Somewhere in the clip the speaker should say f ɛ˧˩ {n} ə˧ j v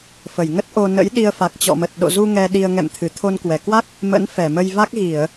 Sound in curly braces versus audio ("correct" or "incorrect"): incorrect